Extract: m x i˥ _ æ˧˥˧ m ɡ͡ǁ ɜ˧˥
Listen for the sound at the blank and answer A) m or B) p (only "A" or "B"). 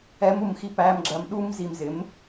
B